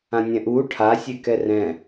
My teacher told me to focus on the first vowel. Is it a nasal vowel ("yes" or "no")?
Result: yes